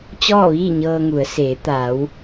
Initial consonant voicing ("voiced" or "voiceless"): voiceless